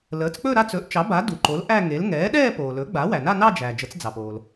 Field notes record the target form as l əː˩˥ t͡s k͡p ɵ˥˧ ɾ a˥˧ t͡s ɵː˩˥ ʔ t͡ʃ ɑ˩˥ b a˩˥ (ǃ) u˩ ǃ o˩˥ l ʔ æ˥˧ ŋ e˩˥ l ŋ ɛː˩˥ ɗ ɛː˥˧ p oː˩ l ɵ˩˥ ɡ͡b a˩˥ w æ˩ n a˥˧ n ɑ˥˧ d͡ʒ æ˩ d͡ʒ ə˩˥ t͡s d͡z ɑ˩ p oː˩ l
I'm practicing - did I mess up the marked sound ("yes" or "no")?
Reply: yes